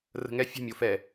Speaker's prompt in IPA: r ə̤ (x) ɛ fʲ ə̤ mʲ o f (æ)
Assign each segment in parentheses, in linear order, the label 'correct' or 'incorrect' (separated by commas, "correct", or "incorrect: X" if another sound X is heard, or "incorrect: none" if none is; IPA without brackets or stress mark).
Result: incorrect: ŋ, incorrect: ɛ